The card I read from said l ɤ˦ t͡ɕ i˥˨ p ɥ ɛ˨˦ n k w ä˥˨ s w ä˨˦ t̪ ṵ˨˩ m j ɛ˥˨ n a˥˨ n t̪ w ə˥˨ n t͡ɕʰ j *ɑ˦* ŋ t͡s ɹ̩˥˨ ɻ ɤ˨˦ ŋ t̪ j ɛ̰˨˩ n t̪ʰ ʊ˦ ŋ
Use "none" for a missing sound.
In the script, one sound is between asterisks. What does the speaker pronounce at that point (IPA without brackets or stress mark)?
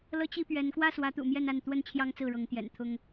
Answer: ɑ˦